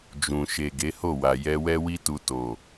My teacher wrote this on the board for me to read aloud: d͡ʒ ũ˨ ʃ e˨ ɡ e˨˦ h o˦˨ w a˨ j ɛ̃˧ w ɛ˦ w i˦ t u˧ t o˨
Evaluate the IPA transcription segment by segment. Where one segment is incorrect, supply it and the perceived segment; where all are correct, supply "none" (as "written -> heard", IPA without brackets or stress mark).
ɛ̃˧ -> ɛ˧